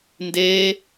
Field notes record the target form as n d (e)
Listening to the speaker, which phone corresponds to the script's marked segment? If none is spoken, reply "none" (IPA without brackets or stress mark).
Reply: e